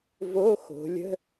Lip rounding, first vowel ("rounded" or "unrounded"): rounded